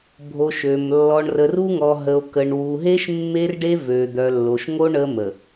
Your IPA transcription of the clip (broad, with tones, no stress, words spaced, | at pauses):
bʱo˨ ʃø˨m lːɔ˨ɳrə˨ru˦ŋɔ˨ ɦə˨o̯kə˨ɳ wu˨ɦe˦ʃ mːe˦rɖe˦ vø˨d̪œ˨lːo˨ʃŋo˦ ɳə˦ mə˨